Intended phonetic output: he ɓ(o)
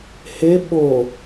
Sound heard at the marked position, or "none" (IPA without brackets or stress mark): o